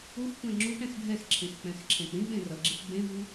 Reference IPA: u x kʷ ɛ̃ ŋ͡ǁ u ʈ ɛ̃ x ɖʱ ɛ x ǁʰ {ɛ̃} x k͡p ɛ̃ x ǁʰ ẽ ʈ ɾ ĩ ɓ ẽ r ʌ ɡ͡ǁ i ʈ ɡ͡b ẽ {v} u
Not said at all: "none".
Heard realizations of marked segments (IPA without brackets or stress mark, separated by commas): ẽ, v